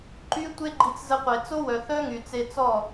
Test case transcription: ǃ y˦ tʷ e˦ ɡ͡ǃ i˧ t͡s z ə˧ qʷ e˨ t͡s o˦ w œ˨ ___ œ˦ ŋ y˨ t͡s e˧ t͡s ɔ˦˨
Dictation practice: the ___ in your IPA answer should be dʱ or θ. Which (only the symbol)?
θ